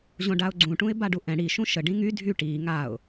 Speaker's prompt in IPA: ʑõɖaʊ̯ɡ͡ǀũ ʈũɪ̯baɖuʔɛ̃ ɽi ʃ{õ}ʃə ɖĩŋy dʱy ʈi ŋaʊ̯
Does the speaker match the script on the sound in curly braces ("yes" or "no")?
no